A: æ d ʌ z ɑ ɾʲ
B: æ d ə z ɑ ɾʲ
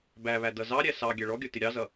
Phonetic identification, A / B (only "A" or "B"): A